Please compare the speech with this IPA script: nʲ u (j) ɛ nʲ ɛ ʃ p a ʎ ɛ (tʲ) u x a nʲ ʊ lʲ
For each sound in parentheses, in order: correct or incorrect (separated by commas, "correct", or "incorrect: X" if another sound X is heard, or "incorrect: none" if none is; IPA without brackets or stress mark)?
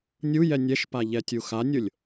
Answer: correct, correct